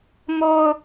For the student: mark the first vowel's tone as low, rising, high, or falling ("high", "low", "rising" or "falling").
low